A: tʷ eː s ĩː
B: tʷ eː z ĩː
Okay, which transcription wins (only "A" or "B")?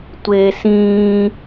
A